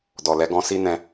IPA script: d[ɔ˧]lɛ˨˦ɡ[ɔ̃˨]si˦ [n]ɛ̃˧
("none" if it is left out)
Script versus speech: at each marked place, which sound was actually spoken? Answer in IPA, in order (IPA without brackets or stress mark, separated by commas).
ɔ˨, ɔ̃˧, n